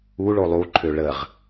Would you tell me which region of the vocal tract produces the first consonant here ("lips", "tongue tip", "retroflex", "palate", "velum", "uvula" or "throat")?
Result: retroflex